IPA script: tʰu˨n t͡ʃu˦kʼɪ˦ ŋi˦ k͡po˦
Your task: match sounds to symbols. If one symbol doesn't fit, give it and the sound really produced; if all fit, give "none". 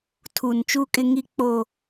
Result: none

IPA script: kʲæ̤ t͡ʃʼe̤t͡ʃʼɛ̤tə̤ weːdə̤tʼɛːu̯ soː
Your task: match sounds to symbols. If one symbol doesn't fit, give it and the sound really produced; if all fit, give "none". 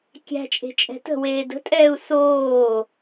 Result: none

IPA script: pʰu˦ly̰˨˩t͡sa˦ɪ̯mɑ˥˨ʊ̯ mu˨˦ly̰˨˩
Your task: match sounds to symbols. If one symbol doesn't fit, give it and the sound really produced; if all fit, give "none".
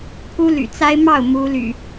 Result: none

